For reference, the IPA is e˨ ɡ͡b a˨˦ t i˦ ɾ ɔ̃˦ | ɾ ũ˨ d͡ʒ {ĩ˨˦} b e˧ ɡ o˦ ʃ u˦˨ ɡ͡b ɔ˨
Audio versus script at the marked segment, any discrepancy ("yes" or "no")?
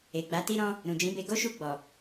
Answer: no